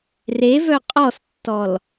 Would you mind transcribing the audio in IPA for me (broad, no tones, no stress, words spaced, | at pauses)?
revœ qʼɔstːɔl